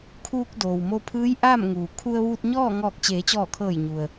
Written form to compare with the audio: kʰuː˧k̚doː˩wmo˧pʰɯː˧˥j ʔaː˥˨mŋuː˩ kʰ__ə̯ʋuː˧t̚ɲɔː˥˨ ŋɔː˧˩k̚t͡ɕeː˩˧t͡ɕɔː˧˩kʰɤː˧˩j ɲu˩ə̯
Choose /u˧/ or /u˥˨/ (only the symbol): u˧